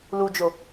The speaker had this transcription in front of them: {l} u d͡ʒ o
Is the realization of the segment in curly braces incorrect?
no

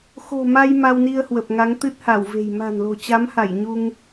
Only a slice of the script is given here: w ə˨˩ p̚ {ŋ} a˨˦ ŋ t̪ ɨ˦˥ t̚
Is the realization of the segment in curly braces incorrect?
no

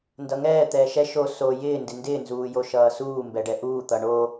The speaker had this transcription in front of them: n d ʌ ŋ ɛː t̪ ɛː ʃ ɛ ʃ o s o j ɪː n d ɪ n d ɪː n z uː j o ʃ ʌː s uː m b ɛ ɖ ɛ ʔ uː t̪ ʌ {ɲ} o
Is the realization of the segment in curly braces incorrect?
yes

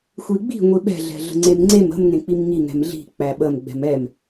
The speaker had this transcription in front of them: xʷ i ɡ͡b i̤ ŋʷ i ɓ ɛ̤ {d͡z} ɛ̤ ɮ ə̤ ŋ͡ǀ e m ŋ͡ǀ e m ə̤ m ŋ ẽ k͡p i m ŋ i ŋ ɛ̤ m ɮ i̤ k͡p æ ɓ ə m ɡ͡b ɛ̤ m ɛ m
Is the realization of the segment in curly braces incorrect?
yes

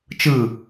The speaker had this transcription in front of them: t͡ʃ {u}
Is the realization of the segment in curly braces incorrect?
yes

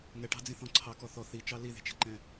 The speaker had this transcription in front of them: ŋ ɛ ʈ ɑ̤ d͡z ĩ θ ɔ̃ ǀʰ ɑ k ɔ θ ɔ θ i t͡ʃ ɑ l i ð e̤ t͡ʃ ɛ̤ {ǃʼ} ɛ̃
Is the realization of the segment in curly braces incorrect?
yes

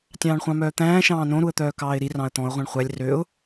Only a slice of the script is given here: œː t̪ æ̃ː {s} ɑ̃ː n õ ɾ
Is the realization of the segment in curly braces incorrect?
yes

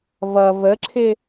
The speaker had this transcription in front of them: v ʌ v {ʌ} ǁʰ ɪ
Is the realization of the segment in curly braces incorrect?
yes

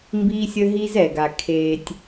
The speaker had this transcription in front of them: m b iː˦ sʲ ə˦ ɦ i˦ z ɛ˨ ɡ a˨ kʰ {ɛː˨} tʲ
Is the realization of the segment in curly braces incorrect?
yes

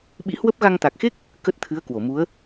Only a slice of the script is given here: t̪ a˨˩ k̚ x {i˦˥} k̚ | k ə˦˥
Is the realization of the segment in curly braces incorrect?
yes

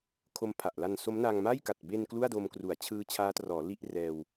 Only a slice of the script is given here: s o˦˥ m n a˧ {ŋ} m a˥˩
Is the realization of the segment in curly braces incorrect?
no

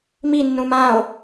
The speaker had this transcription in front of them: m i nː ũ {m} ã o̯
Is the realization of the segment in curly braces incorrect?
no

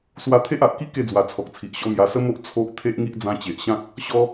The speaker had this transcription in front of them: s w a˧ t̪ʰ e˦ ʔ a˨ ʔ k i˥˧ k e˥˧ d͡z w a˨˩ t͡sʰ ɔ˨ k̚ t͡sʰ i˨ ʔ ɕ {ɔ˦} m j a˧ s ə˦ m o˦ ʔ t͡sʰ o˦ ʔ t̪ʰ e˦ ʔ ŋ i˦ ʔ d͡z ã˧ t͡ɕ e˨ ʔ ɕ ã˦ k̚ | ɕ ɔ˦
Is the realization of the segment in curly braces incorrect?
no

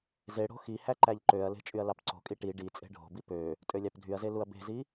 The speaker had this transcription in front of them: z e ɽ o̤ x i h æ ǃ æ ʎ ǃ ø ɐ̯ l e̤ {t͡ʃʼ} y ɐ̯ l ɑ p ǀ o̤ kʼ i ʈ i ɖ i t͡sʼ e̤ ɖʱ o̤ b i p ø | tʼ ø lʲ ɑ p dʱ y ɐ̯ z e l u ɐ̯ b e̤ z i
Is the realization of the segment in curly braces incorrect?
no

